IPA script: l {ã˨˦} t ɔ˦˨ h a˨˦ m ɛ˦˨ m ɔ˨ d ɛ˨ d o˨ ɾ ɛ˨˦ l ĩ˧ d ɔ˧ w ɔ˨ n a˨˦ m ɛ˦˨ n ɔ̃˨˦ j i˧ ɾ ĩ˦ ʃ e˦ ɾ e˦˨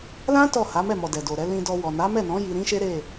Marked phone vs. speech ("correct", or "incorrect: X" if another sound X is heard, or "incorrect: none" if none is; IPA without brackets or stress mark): incorrect: ã˦